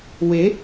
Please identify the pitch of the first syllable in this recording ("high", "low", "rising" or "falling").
rising